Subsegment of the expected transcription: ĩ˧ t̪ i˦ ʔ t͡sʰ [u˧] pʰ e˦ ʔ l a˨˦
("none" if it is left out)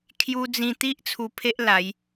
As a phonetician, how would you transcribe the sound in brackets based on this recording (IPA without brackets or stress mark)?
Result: u˧